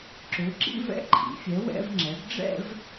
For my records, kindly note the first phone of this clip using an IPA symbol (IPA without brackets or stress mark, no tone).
ǁ